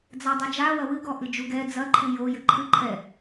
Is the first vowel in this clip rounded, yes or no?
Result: no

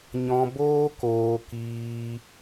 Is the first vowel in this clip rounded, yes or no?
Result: yes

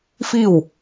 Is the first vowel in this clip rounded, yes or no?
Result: no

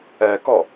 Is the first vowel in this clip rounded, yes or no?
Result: no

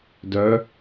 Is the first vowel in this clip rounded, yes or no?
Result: yes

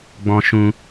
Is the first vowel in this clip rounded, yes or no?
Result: yes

